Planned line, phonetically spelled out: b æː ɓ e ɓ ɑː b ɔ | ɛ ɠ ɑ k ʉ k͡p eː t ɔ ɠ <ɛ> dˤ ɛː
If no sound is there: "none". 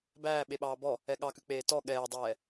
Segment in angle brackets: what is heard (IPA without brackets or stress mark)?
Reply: ɛː